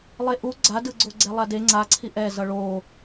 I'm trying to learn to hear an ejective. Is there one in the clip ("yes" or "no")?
no